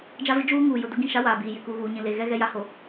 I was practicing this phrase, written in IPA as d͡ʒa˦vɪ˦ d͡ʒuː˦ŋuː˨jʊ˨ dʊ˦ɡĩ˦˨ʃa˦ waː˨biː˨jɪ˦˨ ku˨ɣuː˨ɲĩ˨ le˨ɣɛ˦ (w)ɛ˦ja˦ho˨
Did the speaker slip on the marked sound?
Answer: yes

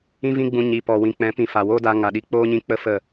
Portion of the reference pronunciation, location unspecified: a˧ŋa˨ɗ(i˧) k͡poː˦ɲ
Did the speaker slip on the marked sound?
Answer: no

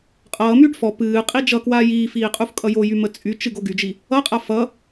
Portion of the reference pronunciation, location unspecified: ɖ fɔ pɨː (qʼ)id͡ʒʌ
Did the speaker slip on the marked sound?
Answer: no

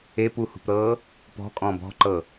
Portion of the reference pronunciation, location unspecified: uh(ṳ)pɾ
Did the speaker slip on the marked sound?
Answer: no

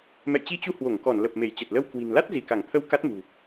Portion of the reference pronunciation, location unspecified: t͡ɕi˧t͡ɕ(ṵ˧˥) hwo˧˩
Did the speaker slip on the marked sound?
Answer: yes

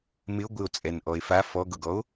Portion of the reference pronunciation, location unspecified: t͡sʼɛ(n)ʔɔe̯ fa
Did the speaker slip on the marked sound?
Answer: no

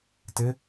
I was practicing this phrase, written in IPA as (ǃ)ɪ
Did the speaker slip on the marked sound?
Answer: yes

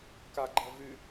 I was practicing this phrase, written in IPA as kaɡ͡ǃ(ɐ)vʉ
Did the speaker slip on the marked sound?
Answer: no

